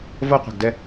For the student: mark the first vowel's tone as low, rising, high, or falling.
high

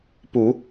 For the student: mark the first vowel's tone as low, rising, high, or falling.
low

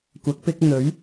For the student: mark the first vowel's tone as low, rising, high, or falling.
rising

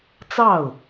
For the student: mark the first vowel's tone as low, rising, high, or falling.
falling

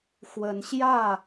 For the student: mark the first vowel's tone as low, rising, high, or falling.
rising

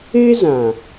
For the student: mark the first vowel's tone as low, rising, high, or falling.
high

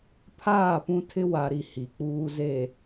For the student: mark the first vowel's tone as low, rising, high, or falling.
falling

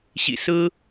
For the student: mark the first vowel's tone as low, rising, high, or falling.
low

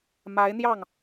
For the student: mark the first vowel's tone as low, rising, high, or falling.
rising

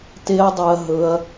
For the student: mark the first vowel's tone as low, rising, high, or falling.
high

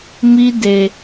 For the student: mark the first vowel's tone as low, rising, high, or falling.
high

